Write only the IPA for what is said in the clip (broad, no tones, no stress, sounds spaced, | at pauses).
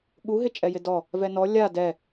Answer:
ɠ u ɦ ɪ t͡ʃʼ ɛ j ɪ d ɔ | v ɛ n ɔ lʲ a d ɛ